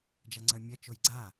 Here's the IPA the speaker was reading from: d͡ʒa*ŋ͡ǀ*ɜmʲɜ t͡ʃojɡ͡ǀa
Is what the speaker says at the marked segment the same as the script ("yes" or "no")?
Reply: yes